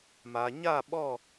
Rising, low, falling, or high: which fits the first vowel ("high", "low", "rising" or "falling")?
low